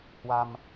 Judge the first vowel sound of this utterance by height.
low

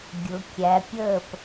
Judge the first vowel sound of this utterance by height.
high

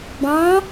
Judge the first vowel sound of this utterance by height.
low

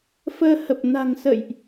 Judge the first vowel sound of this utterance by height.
mid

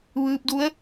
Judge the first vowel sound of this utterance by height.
high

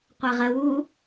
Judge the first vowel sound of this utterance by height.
low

